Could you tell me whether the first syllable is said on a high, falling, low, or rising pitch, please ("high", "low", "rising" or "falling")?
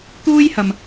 high